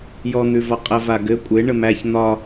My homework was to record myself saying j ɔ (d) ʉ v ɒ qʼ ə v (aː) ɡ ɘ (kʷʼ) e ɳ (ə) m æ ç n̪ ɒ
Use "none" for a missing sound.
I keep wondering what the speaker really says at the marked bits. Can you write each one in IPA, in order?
n̪, a, kʷʼ, ə

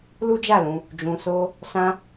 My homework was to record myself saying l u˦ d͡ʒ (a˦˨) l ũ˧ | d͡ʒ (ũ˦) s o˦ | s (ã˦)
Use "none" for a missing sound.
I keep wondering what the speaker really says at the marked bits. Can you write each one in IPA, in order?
a˦˨, ũ˧, ã˦

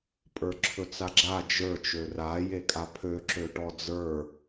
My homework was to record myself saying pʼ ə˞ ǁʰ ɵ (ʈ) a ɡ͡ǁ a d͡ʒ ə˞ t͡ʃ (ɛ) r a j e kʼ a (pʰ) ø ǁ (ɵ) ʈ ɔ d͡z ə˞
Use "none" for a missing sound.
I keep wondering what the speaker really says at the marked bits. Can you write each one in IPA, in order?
t͡s, ø, pʰ, ø

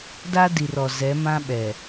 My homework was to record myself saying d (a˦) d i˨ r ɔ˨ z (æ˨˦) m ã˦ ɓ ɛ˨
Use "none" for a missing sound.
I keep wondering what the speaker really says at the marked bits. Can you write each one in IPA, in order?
a˦, ɛ˨˦

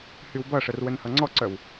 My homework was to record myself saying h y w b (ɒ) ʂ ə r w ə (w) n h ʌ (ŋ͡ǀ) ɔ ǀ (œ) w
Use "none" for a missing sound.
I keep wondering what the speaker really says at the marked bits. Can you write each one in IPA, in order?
ʌ, none, ŋ͡ǀ, œ

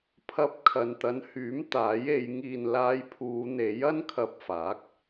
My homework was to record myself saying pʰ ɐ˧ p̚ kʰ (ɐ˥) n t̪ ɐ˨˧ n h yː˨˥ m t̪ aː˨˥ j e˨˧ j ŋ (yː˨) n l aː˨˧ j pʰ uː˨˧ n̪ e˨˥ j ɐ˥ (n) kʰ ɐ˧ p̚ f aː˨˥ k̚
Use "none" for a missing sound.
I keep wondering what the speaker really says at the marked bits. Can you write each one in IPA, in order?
ɐ˨, iː˨, n

